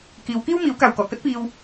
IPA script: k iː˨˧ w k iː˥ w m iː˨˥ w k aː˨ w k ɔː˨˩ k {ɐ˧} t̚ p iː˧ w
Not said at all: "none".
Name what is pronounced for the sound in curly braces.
ɐ˥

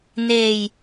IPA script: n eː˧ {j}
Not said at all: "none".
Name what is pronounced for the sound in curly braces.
j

